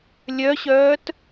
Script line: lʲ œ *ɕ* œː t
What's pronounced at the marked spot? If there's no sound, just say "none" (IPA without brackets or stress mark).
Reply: ɕ